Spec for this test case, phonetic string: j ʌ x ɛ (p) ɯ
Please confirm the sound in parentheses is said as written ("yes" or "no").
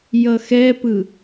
yes